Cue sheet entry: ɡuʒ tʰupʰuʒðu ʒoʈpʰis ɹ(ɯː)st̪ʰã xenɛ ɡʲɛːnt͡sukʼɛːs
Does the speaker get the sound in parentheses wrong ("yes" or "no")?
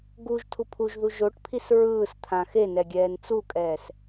no